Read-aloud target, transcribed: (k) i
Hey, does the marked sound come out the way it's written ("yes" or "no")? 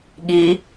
no